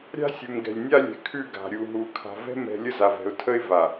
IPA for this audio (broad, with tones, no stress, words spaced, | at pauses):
ɾʲa̤˦sʲu˨mɡɛ̤˨lʲnʲa˦ lʲɛ̤˨kʰʉ˦˨ɡa̤˨ ɾʲu˨ɦu˨ kʰa̤˨vɛ̤˦mɛ̤˨ lʲə˦za˨vɛ̤˨ʊ̯tʰə˦ɪ̯ va˨